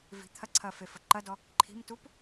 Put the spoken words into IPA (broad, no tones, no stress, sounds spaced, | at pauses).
v i̤ t̪ʰ ɐ ǀʰ ɐ f e f ə ǃ ɐ d ɔ | ǃʰ i̤ m t u p